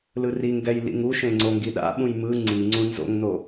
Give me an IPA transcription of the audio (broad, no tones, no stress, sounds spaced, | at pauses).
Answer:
l ɯ r i ŋ ɡ ɛ j l ḭ ŋ u ʃ ẽ ŋ͡ǀ o ŋ ɡ i ɗ a̰ ɓ ũ j m ɯ ŋ͡ǀ i ŋ͡ǀ ũ n z o̰ ŋ n o